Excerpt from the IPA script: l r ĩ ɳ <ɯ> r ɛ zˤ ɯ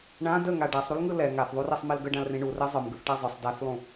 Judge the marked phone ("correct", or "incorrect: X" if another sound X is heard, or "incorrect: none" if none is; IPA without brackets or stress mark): incorrect: u